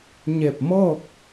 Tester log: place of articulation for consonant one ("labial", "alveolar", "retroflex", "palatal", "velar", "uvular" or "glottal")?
palatal